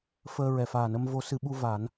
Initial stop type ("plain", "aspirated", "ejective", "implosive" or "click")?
implosive